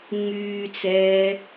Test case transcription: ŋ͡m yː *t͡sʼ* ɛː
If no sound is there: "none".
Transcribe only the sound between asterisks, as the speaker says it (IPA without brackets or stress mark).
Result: t͡s